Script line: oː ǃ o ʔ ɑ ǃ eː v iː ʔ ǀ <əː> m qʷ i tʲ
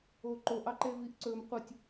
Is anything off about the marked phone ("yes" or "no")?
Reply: yes